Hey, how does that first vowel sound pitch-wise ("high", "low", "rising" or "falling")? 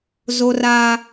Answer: high